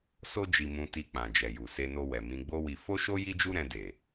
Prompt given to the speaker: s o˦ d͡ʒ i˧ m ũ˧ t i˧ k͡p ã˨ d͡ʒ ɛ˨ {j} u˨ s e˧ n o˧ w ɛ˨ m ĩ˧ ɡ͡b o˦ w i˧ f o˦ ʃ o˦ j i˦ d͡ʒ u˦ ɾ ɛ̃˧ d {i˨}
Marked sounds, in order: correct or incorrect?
correct, incorrect: e˨

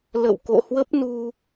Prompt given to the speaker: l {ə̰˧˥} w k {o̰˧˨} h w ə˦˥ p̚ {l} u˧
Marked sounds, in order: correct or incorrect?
incorrect: ə̰˧˨, correct, incorrect: n

